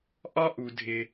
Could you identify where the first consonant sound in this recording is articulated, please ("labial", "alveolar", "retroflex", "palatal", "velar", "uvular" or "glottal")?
glottal